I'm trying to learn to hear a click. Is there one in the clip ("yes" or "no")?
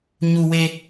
no